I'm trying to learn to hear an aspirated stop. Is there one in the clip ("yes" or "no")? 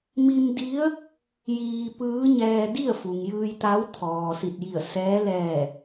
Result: yes